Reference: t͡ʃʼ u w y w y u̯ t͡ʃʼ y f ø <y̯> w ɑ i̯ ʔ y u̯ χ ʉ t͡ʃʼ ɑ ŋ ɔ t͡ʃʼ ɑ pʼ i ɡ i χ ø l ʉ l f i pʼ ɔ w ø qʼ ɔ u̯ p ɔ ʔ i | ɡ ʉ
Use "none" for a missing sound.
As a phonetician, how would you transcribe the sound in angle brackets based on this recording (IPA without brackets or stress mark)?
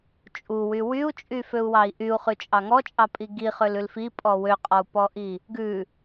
u̯